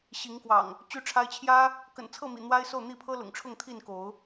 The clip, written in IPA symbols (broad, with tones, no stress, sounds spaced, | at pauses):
ɕ i˨˦ ŋ k w ɑ̰˨˩ ŋ | t͡ɕ y˦ ʈ͡ʂʰ a˦ ɪ̯ t͡ɕʰ j ä˦ | k ə̰˨˩ n t͡sʰ ɤ˥˨ m ḭ˨˩ n̪ w a˦ ɪ̯ s o˥˨ ʊ̯ n̪ i˥˨ pʰ ɤ˦ l ʊ̰˨˩ ŋ ʈ͡ʂʰ ʊ˥˨ ŋ t̪ʰ i˥˨ n k o˨˦ ʊ̯